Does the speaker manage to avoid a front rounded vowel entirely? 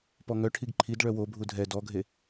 no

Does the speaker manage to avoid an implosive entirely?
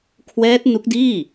yes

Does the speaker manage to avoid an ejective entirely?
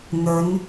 yes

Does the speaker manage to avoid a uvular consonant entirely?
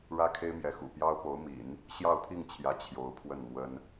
yes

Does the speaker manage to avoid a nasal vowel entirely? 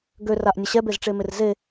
yes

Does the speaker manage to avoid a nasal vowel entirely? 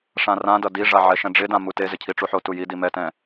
no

